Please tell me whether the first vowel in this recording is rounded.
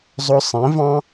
yes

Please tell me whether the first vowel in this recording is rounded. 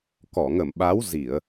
yes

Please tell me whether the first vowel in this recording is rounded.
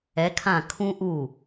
no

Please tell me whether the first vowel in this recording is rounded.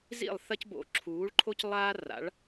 no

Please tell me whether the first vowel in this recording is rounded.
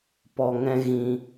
yes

